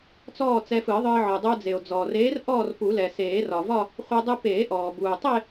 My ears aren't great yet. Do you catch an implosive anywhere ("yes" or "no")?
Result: no